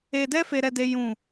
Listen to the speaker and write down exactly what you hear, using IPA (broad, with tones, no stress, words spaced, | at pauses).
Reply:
e˧dɛ˦ fe˦ɾɛ˦de˦ jũ˦˨